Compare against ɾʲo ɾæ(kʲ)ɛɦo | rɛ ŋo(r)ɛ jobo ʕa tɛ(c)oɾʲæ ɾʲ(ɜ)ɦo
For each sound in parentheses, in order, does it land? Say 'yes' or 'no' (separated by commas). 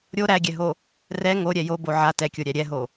no, no, no, no